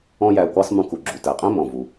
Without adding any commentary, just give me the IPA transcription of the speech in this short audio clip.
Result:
ɔ̃˥jæ˧ʊ̯kʷæ˥sˤ mũ˧ku˩ɡ͡ǁu˩ tæ˩qʼæ̃˥mɔ̃˩vu˩

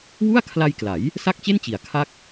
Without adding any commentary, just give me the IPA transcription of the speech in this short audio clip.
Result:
wu˥˩a̯ kʰla˧jkla˩˦j | sa˥˩k̚t͡ɕe˥˩nt͡ɕi˩˦a̯ kʰa˥˩k̚

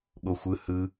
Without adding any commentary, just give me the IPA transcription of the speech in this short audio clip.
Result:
ɠoxʷɯ hɯ

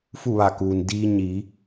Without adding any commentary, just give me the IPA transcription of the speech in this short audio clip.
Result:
fu˥˨ʋa˧˩kuː˩n diː˧ ɲi˩˧

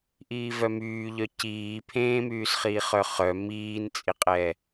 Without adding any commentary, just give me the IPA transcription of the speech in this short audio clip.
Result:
ʔiːvœmyːʎœ ciː pʰẽːmyːsχiː χœχœ miːnt͡sʼiqʼɛ

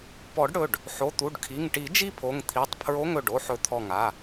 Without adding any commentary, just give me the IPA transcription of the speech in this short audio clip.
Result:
pɔ˨˩˦ɖɽɵ˩˧˩ɖ | ħo˩˧˩t̪u˩˧˩ɖkʰi˩˧˩ŋʈi˨˩˦ d͡ʒi˥˧pʰo˩˧˩ŋt̪ʰi˩˧˩tˤpʰɹo˧˥˧ŋ ɵ˩˧˩ɖo˥˧ħɵ˧˩ t̪ʰɔ˧˩ŋa˩˧˩

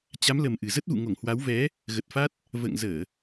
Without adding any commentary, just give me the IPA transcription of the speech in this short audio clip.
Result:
t͡ɕa˨˦mlə˨˩m ʔɨ˨˩ zə˦˥t̚vṵ˧˨ŋo˧˩ŋ hwa˨˦wvɛ˨˦ | ɣə˨˩t̚fa˦˥t̚ | və̰ː˧˨ŋ zəː˧˩˨

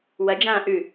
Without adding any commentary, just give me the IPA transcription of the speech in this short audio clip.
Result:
wɐd͡ʒãː ʔʉ

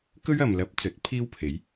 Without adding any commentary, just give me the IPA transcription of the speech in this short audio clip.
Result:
kɵ˥ɥɐ˨mlɐ˨˥p̚ t͡sɵ˨˥t̚pʰiː˥wpʰe˨˥j

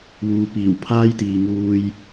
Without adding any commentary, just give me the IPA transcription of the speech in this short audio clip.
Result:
wuː˨piː˨˩wpʰaː˥jt̪iː˨ ŋuː˧j

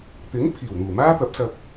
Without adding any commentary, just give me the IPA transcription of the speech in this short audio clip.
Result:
t̪ɪ˨˥ŋ pʰiː˨˩wn̪uː˨˩maː˥t̪ɐ˨˥p̚ sɐ˨k̚

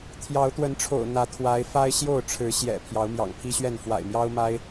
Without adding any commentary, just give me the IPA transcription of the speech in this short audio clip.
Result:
t̪ʰjɑ˨˦ʊ̯t̪wə˨˦nʈ͡ʂʰo̰˨˩ʊ̯ n̪ä˨˦t̪ʰwa˨˦ɪ̯ fa˦ɪ̯ɕjo˥˨ʊ̯ʈ͡ʂʰɻ̩˨˦ɕjɛ̰˨˩ pʰjɑ˨˦ʊ̯mjɑ̰˨˩ŋpʰi˦ɕɥɛ˥˨n fwa̰˨˩ɪ̯mjɑ˦ʊ̯ma˦ɪ̯

